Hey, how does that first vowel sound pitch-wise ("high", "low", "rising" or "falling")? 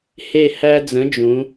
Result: falling